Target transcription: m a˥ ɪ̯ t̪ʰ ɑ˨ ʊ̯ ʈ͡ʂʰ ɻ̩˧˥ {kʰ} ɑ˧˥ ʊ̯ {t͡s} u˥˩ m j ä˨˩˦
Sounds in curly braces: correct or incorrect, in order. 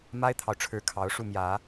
correct, incorrect

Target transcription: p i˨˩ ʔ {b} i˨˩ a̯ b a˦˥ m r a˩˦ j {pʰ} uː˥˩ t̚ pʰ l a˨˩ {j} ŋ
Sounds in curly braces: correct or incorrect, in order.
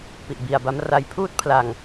correct, correct, incorrect

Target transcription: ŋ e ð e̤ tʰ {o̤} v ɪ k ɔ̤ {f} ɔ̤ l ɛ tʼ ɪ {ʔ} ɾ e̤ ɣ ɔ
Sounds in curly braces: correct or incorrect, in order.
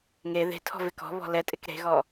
incorrect, incorrect, incorrect

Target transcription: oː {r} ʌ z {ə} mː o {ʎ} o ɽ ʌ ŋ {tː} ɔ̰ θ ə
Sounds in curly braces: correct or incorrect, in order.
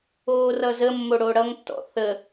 correct, correct, incorrect, correct

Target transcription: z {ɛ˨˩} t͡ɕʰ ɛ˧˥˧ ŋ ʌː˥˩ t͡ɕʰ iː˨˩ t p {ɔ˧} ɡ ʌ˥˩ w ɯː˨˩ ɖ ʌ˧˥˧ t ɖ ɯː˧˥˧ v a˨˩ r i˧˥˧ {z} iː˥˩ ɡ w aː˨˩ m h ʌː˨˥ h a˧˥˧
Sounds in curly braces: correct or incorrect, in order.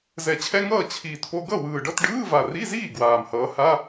incorrect, incorrect, correct

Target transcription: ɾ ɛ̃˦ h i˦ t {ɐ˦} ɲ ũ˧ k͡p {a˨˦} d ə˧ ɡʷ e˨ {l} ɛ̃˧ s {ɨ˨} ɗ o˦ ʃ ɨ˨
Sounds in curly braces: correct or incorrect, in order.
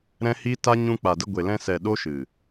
incorrect, incorrect, correct, incorrect

